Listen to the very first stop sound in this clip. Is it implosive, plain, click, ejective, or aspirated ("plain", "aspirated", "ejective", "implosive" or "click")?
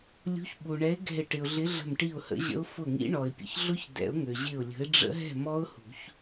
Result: implosive